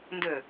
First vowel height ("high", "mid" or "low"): mid